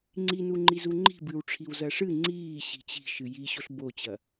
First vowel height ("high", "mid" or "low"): high